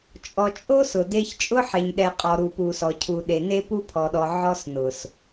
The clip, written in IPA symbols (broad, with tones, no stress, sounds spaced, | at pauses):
t͡ʃʼ ɔ˨ t͡ʃʼ o˦ s ʊ˨ d e˦ ç t͡ʃʼ ʊ˦ ħ e˨ ɲ ɗ ɛ˨ qʼ ɔ˨ ɾ u˨ p u˨ s ɔ˨ cʰ u˨ ɗ e˨ n e˦ p u˦ pʰ ɔ˨ ɗ ɔ˨ ʕ ɔ˦ s n ʊ˨ s